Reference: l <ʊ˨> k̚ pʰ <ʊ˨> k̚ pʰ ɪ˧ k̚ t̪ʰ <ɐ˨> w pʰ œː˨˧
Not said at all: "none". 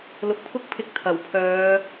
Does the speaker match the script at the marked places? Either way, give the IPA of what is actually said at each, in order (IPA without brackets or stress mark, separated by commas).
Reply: ʊ˨, ʊ˥, ɐ˨˩